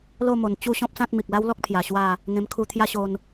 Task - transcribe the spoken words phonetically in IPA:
l o˥˧ m o˨˩ n t͡ɕ u˥˧ ɕ ɔ̃˦ p̚ s ã˦ t̚ m i˨ k̚ l a˦ w l ɔ˦ k̚ pʰ j a˨˩ ɕ w a˥˧ | ŋ ẽ˧ m kʰ u˧ t̪ʰ j a˦ ɕ o˧ n

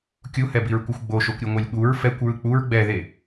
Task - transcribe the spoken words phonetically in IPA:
kʲ u h ɛ b i ɹ kʷ ɯ xʷ ɡ͡b o ʃ o kʷ ɾʲ ɯ ŋʷ ɛ lʲ ɠ u ɹ f ɛ kʷ ɹ ɯ k͡p u ɹ ɡ͡b ɛ ð e

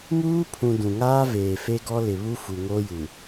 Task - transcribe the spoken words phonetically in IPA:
m uː˦ pʰ ũ˨ d ũ˨ ŋ aː˦ v eː˨ f e˦ ɡ ɔ˦ l ɪ˨ β u˦ f u˨ ŋ oː˦ j u˨

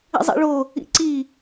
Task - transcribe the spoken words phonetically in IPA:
ḭ zˤ ḭ ɭ o | ḭ ǀ i

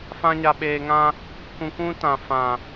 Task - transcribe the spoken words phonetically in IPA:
f ã˦ ɲ a˧ ɓ eː˧ ŋ ã˦ | k ũ˧ kʷ ũ˦ t ã˨ f ã˨

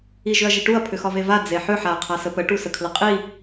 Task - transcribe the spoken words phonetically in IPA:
i ʒ ʏ ɐ̯ ʒ i ʈ u ɐ̯ pʰ ʏ x ɒ v e v a d͡z e ħ ʏ ħ a ɐ̯ qʰ a s ə p ə ʈ u s ə kʰ l ə qʼ i

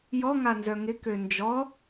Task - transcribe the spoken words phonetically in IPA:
j ɔ ŋ a n z œ ŋ ɪ k ø n d͡ʒ ɔ

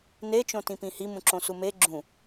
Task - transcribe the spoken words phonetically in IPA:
n e t͡ʃ õ t ĩ p ĩ h i m ũ ǁ õ s u m e ɡ͡ǁ ũ

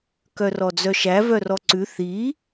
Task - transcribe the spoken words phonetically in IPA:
k œ r ɔ d͡z œ ʃ æ v œ r ɔ ǀ ʉ θ i

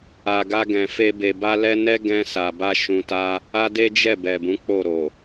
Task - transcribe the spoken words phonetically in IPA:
a˨ ɡ a˧ ɡ ɛ̃˨ f e˧ b e˨ b a˧ l ɛ˧ n ɛ˦ ɡ ɛ̃˧ s a˨ b a˧ ʃ ũ˧ t a˦ | a˦ d e˦ d͡ʒ ɛ˦˨ b ɛ˨ b ũ˨˦ k͡p o˦˨ ɾ o˨

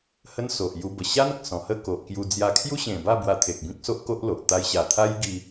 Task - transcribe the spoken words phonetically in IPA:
h ə˦ n s o˨ ʔ j u˧ b ə˨˩ ɕ a˦ n ə˨ k̚ s ɔ̃˨˩ h ə˥˧ k o˨ ʔ k j u˧ d͡z j a˧ kʰ j u˦ ɕ ẽ˨˩ b a˥˧ b w a˧ t̪ʰ e˨ k̚ b ĩ˦ k̚ s o˦ ʔ k o˦ ʔ l o˨ ʔ t̪ a˧ j ɕ a˨˩ t̪ʰ a˦ j ɡ i˧

